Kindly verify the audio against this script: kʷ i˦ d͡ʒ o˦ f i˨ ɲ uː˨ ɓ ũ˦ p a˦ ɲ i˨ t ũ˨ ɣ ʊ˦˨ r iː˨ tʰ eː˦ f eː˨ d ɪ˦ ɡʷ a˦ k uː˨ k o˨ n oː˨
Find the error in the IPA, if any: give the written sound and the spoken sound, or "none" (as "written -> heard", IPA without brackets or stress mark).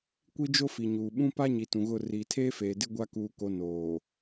none